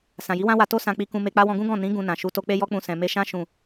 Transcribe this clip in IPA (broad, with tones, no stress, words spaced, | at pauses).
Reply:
sã˨ji˨˦wã˦wa˧ to˦ sã˧k͡pi˧ kũ˧me˧k͡pa˦ wɔ̃˧ɡũ˦ɡɔ̃˦˨ nĩ˨˦ ɡũ˧nã˨ ʃu˨˦to˧ k͡pe˦jɔ˦k͡pũ˧ sɛ̃˨me˧ʃã˦ ʃũ˦˨